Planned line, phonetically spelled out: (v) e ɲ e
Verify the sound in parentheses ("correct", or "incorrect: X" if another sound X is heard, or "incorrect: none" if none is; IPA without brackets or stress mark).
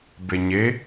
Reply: incorrect: b